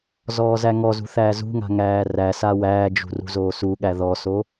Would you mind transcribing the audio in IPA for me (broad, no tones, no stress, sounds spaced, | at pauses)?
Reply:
z ɔː z æ ŋ ɔ z ṳ θ æː z ṳ ŋ a̤ ŋ æː r æ s a w æː d͡ʒ ṳ r ṳ z oː s u ɠ æ ð ɔ s o